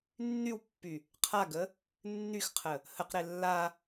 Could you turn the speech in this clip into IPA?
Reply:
nː y w pː y | qʰ a ɡ ə | nː y x qʰ ə | h ə q ɾ e lː a

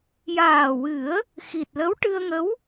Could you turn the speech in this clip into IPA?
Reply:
j aː˨˩ w ɨ˨˩˦ ə̯ | x i˨˩ t̚ l ə˧˥ w ʈ ɨ˧ ə̯ ŋ ə˧˥ w

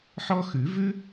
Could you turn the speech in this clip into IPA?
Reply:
ħ ɔ˥ x ʉ˨˩˦ v ʉ˥

